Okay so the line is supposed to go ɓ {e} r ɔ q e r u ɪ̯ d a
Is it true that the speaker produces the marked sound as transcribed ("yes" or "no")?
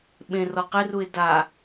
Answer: no